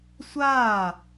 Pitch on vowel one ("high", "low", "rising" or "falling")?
falling